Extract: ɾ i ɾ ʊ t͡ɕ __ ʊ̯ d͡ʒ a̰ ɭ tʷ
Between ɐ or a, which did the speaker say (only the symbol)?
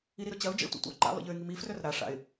ɐ